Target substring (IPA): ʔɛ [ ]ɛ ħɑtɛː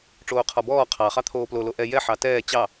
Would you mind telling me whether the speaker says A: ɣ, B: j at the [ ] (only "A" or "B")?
B